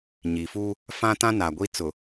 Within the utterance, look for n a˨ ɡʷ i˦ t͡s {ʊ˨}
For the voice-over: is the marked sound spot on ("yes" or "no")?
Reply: yes